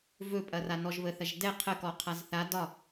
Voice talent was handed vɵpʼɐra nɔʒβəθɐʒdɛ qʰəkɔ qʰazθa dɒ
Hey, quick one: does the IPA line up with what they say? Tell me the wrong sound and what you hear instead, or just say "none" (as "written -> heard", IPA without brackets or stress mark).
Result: none